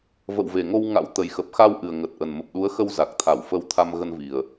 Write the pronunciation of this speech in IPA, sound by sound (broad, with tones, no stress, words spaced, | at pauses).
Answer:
və̰˧˨wve˨˩ŋo˧wŋa̰˧˥w t̪ə˨˩jxə˨˩p̚xa˧w ʔɨ˨˩ə̯ŋə˨˩t̚ʔə˨˩nmə˨˩p̚ ɗu˨˦ə̯xə˧w za˨˩k̚t̪ʰa˧˩wfə˧w t̪ʰa˧mɣə˧nvi˨˩ə̯